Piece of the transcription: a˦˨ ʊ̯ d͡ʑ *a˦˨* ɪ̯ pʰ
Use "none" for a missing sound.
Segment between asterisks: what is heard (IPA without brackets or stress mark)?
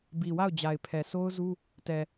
a˨